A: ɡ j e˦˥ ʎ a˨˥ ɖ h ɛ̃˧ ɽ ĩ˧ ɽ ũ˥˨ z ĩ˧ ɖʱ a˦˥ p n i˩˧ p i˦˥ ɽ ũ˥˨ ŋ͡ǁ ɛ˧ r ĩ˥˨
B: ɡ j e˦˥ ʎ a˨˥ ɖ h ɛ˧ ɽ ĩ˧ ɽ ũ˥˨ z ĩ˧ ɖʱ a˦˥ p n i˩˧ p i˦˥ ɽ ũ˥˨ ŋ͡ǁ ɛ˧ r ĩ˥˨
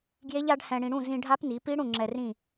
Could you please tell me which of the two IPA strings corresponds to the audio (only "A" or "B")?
A